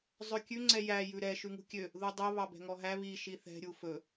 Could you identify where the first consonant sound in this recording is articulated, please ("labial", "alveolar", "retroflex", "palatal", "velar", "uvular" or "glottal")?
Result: alveolar